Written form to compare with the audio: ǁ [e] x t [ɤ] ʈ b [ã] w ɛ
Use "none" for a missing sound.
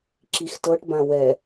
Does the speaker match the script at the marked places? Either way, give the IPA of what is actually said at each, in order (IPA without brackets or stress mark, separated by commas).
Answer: i, ɤ, ã